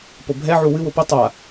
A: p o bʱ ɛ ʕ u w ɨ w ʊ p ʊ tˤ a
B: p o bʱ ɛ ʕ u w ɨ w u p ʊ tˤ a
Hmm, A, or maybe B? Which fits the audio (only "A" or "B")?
A